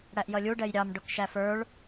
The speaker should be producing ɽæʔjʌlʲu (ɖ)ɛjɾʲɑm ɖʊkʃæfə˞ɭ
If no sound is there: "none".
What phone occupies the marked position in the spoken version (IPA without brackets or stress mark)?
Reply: ɖ